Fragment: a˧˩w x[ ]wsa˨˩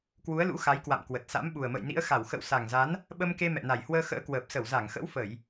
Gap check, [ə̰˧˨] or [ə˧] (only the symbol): ə̰˧˨